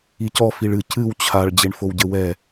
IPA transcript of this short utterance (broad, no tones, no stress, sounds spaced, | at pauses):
i c ɔ f i ɭ ɨ c ɨ w t͡ɕʰ a ɭ d͡ʑ e ɳ f o w ɟ ɘ w ɛ